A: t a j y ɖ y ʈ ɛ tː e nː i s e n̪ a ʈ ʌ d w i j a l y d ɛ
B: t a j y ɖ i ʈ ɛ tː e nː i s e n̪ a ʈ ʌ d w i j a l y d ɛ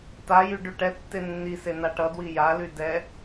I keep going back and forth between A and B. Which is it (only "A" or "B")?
A